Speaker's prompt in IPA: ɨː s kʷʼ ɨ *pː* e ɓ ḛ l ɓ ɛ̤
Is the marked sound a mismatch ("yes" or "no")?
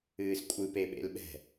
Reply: yes